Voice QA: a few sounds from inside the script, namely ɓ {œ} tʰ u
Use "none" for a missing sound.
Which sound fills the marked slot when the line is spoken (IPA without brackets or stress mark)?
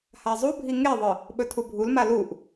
ɵ